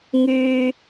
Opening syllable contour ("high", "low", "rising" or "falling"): high